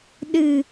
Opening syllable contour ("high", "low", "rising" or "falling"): low